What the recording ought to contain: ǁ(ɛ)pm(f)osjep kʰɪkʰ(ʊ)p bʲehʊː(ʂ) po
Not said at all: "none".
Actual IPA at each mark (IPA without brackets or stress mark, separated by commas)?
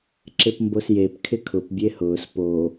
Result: ɪ, b, ʊ, s